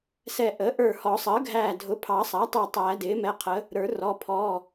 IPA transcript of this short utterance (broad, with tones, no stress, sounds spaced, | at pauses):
s ɛ˧˩ ʔ əː˩˥ ʔ ə˞˧˩ h ɔ˨˩˦ sˤ əː˩˥ ɡʱ æː˧˩ dʱ ʊ˩˥ pʰ ɑ˨˩˦ sˤ æ˩˥ tˤ əː˧˩ tˤ æː˨˩˦ d ɪː˩˥ m ɛ˩˧˩ qʰ ə˩˥ | ɾ ə˞˨˩˦ r ɔ˩˧˩ pʰ ɔː˩˧˩